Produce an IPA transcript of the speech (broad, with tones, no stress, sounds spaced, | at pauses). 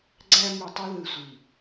ɡ͡ǀ æ˧ m y˨ tˤ ɯ˧ ð ɯ˨ sʷ i˨